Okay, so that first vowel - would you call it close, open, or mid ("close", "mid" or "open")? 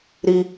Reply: close